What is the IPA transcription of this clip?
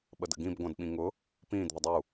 ɓ ə d ə̰ ɡ ĩ b ɡʷ ã d ɓ ĩ ŋ ʊ | p ĩː d ð ə dˤ u

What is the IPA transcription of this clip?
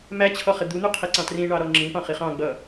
m æ t͡ɕʰ ɔ χ ɪ d̪ u n̪ u qʰ i ǀ ɑ̃ t r ĩ ɳ ɑ ɾ ɔ ŋ͡ǁ ĩ p ɑ̃ χ i χ ɑ̃ ɡ͡b ʌ

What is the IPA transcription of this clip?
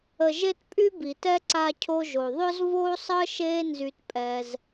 ə˨ ʒ e˦ t pʼ y˦ b i˨ t ɛ˦ ǀ a˧ cʰ o˧ ʒ o˨ ðˤ œ˦ z v oː˦ sˤ əː˦ ʃ eː˦ n z y˧ t pʼ ɛː˧ z

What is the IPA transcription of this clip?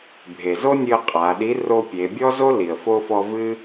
bʱ e˩ z o˥ nʲ ɨ˧ ə̯ qʼ a˩˧ ɗ i˧˥ r o˧ pʲ e˩˧ bʲ ɔ˥ z o˥ l i˩ ə̯ f o˧ f ɔ˧ v ɨ˥

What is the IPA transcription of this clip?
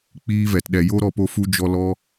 k͡p iː˦ v ɛ˨ t ɗ ɛ˨ j o˦ ɾ ɔ˧ p o˧ f u˧ d͡ʒ ɔ˧ l ɔ˦

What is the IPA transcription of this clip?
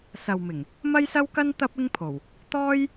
s ɐ˨ w m ɪ˨˩ ŋ | m ɐ˥ j s ɐ˥ w k ɐ˥ n t̪ ɐ˥ p̚ ɪ˥ ŋ pʰ o˨˩ w | t̪ ɔː˥ j

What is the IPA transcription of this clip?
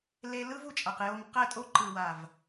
l e˧ l ɯ˦ v u˨ t͡ʃʼ a˨ q j o˧ m q ɛ˦˨ tʼ o˦ ǃ ɯ˨ w a˨ v

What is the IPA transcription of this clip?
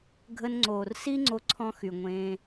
ɡʱ ə˧ n ŋ͡ǀ oː˨ r s i˦ ŋ͡ǀ o˧ ǀʰ ɔ̃˧ x y˨ ŋʷ ẽː˧

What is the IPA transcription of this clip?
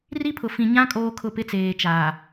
r i˦ pʰ ʊ˨ f ĩ˨ ɲ ã˦ kʼ oː˦ kʰ ʊ˦˨ p ɪ˦ t͡s eː˨ t͡ʃ aː˨

